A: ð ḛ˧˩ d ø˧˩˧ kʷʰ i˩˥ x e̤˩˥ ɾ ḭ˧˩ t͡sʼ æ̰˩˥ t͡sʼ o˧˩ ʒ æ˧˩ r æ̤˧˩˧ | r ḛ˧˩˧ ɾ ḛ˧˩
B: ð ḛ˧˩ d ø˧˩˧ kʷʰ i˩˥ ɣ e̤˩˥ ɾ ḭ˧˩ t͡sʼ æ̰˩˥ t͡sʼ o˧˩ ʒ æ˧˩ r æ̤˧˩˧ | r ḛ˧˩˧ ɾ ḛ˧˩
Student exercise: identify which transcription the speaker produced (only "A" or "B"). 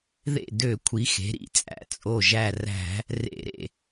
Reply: A